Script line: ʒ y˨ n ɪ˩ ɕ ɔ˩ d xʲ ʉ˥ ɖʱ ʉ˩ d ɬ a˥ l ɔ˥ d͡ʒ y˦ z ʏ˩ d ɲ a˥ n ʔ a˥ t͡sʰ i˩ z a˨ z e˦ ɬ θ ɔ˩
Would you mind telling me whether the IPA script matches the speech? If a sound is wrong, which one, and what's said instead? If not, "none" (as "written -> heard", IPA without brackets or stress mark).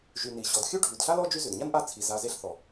ɪ˩ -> i˩